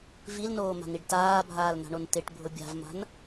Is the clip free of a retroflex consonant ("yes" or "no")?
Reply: no